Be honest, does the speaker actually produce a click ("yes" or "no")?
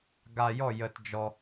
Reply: no